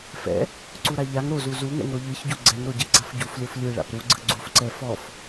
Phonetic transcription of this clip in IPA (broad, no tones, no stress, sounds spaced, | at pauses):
f ɛ̰ | ǀ u ɾ a ʎ a ŋ ɾ o z u z u ŋ ɛ̰ ŋ ɾ o ʎ ɯ ç ɟ u ɡ͡ǀ ɛ ŋ ɾ o ɟ ɛ ɡ͡ǀ a f ɟ u f lʲ o f lʲ ɯ ɭ a̰ p ɾ u ɡ͡ǀ ɯ ɡ͡ǀ u f ǀ ɛ f ɔ f